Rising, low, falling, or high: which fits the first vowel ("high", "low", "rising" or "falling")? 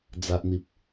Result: low